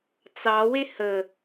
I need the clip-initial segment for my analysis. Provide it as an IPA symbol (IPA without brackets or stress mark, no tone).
t͡s